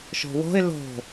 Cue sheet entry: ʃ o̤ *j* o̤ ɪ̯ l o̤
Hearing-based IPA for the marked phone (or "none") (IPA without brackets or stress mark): w